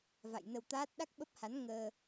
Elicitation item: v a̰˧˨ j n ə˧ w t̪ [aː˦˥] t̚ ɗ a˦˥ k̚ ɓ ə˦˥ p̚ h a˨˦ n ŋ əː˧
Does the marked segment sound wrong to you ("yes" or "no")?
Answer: no